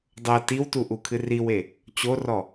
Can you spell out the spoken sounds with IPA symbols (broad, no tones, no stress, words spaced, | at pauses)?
dˤɤ tiwtu ʔukʰɨriwe | t͡ɕorɔ